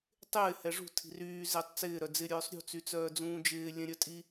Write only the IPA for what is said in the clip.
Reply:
tˤ ɪː h ɛ ʐ ṳ tʰ i̤ r yː z ɪː tˤ t͡s ɪː ɾ œ d͡z ɪ ɾʲ œː sˤ ɾʲ ṳ t͡s y t͡s œː d͡z ũː d͡ʒ ɪː lʲ ɛ̃ ɾʲ œ tʼ i

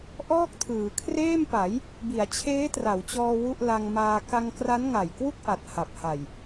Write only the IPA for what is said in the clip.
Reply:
ʔ ɔː˥˩ k̚ tʰ ɯː˩˦ kʰ r eː˥˩ m p a˩˦ j | b i˩˦ a̯ t͡ɕʰ eː˦˥ t r a˩˦ w t͡ɕ ɔː˧ w u˥˩ ʔ l a˧ ŋ m aː˧ k a˧ ŋ k r a˦˥ n ŋ a˨˩ j k w u˥˩ k̚ ʔ a˨˩ t̚ h a˨˩ p̚ h a˨˩ j

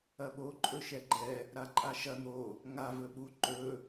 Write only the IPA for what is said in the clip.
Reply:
ɐ ɓ o ǃʼ ɵ ʃ ɛ ɡ͡ǃ ɛ | ɾ a ǃʼ a ʃ ɐ n̪ o | ŋ a v ɵ ɓ u ǃ ɵ

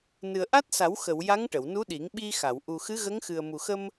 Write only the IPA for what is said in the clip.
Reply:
n ɨ˨˩ ə̯ ʔ a˦˥ t̚ s a˨˩˦ w x ə˨˩˨ w j a˧˥ ŋ ʈ ə˨˩˨ w n u˧˥ ɗ i˨˩˦ ŋ ɓ i˧ x a˨˩˨ w ʔ u˨˩ x ɨ˧˥ ɣ ə˧˥ ŋ x ɨ˨˩ ə̯ m u˨˩ x ə˧ m

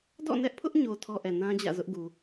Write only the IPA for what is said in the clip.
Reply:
d ɔ̰˦˨ n ɛ˦ ʔ pʰ ʊ˦ ʔ ɲ o˨ tʰ ɔ˦ ʔ ɛ˨ n ã˦ d͡ʑ ä̰˦˨ z ʊ˦ ʔ ɡ u˨

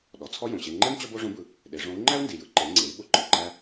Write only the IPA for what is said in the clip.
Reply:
ɗ ɔ˩˧ t͡sʰ ɔ˥ j õ˩ ɕ e˧ ŋ͡ǃ ɛ˥ m t͡ɕ ɔ˥ b o˥ ʐ õ˧˥ b ɯ˩˧ | ɗ e˩˧ ʐ õ˧˥ u̯ ŋ͡ǃ æ˥ u̯ n d i˩ j ɯ˩˧ ǃ e˩˧ ŋ͡ǀ e˩˧ i̯ ɓ ʊ˧˥ ǃ ɯ˩ ǃ æ˧

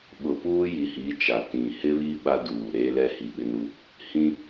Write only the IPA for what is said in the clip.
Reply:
ɓ ʊ˨ p uː˦ j i˨ h i˨˦ t͡ʃ a˨ t ĩ˨ h ɪ˦ β i˦ ɓ a˦ d uː˨ ɾ eː˦ l ɛ˦ h i˨ ɓ ɪ˦ n u˦ | h ĩ˦

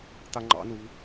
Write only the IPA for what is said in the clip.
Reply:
t̪ a ŋ͡ǃ ɑ̰ n u v

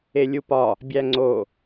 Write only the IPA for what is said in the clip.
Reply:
e lʲ u p ɒ | bʲ æ ŋ͡ǀ o

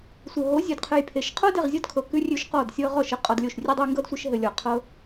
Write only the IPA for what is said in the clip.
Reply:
sʷ ɘ˨ ɦ o˨˦ zʲ ʉ˨ d qʰ ɘ˧ j pʰ e˨ ʃ qʰ o˦ d e˨ ʁ zʲ ɔ˦ d kʰ ɤ˨ k ʉ˧ rʲ ʉ˧ ʃ q ɔ˦˨ d sʲ ɤ˧ ʁ ɔ˦˨ ʃ ɘ˦ qʼ ɔ˧ d lʲ o˦˨ ʃ rʲ ʉ˦ dˤ ɘ˦ j ŋ ɡ ɤ˦ d sʷ ɘ˧ ʃ ɦ ɘ˧ lʲ ɔ˨ qʰ ɤ˧

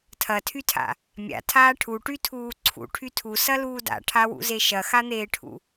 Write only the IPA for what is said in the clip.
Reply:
tʰ ɐ tʰ y tʰ a̰ | mʲ a̰ tʰ aː ʈʰ u ʈ y tʰ uː ǀʰ ṵ ʈʰ y tʰ u s ɐ l uː d a̰ ʈʰ a w ṵ z e ʃ ɐ x a n̪ eː ʈʰ ṵ

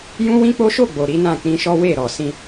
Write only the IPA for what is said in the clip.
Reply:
j ũ˦ w ĩ˦ k͡p o˦ ʃ o˦˨ ɡ͡b o˨ ɾ i˨˦ n ã˦˨ k͡p ĩ˧ ʃ ɔ˦ w e˦˨ ɾ ɔ˨ s ĩ˧

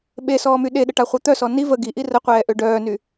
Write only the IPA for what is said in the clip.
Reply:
ɓ e s ɔː m y ɗ e ɗ ə ʈ a χʷ œ t̪ œ s ɔ n i v ə ɡ i ʔ i r ə qʷ ɛː ʔ ø ɖ œː n y

